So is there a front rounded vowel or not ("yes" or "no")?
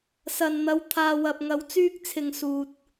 yes